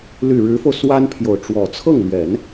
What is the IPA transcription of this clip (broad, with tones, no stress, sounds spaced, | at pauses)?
l y˥˩ ɻ ɻ̩˧˥ f o˧ ʊ̯ s w a˥ n pʰ j o˨ ʊ̯ ʈ͡ʂ w ɔ˨˩ t͡sʰ ɤ˥˩ ŋ l ɥ ɛ˨˩˦ n